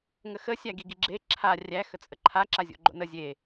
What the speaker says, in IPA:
ŋəxə sʲæɡiɡiɡ͡ǁe ǁʰa rʲæ xət͡sʼəǃʰa ǁazʲo̰ɡ͡ǃo̰nə zʲe

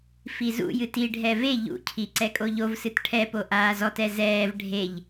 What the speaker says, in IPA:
fizṵjɨt iɖʱɛ ve ʎṵcʰi ǀɛkʼoʎovsɨt ʈʰɛpo ʔaːzɔtɛ zɛːv ɖʱeʎ

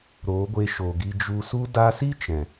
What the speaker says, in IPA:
ɾoː˨˦ɡʷe˧ʃo˨ ɡi˧d͡ʒu˧ su˧da˧si˦ t͡ʃɛ̃˨

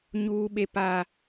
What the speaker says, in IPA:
ɲuː˦ɓe˦pa˦

